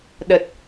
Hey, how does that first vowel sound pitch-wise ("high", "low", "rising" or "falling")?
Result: low